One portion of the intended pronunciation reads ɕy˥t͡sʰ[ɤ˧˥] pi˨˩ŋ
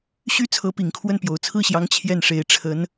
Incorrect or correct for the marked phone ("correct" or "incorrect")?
correct